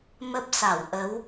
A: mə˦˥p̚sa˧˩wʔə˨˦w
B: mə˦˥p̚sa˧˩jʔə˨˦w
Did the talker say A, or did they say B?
A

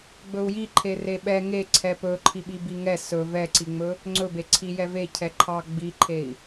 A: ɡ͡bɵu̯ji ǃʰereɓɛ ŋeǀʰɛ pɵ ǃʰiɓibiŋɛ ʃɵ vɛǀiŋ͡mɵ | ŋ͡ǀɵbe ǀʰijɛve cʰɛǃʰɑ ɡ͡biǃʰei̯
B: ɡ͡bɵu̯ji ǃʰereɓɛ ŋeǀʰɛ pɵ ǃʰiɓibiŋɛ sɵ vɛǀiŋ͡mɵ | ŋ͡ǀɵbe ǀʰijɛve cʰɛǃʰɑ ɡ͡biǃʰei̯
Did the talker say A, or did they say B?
B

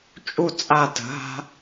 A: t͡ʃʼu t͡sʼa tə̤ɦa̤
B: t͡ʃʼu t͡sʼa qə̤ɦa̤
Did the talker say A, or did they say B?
A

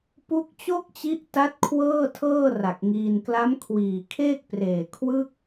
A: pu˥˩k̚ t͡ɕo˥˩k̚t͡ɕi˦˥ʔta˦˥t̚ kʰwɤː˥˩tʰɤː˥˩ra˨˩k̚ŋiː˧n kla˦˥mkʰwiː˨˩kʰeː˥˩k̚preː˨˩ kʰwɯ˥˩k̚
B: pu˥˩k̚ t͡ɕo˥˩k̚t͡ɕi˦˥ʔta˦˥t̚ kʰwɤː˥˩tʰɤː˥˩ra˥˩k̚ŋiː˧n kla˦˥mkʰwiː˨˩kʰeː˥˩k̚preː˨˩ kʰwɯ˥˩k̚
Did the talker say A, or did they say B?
A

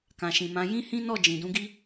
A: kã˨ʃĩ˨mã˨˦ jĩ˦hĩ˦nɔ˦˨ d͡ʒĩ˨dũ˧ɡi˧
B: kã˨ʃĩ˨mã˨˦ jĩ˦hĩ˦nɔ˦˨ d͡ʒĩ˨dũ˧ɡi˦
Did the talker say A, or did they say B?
B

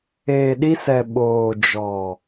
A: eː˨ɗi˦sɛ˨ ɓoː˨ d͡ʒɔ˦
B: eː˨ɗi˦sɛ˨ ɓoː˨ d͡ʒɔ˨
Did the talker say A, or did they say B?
B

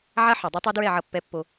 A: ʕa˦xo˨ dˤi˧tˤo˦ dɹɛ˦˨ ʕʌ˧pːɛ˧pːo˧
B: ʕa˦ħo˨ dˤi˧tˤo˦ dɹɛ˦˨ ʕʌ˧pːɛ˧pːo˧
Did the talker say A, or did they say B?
B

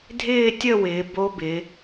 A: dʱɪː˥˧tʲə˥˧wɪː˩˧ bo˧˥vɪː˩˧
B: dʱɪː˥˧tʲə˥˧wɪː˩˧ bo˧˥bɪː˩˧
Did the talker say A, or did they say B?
B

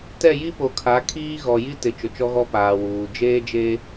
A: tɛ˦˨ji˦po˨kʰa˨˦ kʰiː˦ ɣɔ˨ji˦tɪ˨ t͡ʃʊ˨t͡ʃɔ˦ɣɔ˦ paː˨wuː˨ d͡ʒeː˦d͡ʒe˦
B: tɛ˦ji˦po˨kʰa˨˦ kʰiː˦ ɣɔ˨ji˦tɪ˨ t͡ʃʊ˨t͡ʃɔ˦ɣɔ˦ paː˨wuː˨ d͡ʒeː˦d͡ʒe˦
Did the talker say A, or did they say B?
A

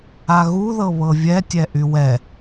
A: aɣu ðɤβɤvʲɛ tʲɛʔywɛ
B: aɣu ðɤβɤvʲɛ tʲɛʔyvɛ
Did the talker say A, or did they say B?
A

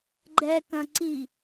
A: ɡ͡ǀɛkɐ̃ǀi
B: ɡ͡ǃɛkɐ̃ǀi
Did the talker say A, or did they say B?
B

